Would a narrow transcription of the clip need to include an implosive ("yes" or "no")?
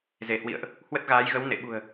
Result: yes